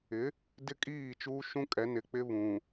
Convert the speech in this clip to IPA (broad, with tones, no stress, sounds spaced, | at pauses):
ɪ˨˦ | d ɪ˦ kʼ iː˦˨ t͡ʃ uː˦ ʃ ũ˦ kʼ ɛ˨˦ n ɪ˨ k͡p ɪ˦ β ũ˨